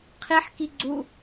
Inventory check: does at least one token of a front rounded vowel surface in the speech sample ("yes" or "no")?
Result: no